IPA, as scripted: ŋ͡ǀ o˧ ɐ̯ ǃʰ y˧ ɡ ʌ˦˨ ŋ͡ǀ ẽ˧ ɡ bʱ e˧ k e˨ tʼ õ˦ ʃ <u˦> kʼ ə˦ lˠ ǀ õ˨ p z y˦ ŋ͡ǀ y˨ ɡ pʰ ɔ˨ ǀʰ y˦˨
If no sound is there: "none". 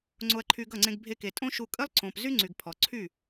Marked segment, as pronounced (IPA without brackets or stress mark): u˧